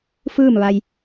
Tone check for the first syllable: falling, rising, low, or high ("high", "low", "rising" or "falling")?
falling